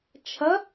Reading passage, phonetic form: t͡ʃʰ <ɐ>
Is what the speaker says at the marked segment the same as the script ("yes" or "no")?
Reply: yes